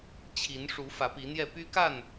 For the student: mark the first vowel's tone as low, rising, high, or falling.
rising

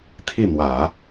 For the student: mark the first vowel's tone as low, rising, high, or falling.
falling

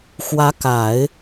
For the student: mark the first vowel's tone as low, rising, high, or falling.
rising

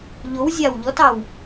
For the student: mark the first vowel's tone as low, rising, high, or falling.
rising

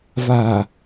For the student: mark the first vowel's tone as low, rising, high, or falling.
low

